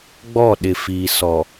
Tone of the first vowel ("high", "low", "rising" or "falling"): falling